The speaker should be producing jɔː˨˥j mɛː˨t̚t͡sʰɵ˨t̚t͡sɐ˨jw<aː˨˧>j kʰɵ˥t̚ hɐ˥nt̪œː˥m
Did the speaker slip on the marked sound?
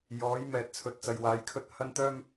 no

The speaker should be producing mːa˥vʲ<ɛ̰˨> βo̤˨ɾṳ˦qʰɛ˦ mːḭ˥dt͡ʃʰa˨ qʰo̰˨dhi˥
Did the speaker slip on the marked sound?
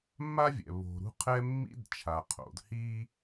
no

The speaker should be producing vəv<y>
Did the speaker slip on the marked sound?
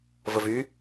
no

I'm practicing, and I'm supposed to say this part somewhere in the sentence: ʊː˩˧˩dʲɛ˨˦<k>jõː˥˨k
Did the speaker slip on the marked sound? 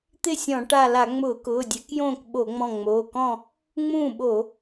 no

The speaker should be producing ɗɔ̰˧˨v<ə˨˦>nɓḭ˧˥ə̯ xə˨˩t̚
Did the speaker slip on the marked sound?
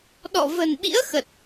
yes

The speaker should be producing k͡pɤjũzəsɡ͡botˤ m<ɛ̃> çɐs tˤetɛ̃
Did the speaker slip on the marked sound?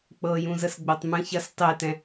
yes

